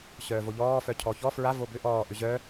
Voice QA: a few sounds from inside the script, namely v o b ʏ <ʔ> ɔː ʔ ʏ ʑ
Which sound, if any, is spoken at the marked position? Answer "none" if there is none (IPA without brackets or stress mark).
ʔ